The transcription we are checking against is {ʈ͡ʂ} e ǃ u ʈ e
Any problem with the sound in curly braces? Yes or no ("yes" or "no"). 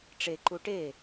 no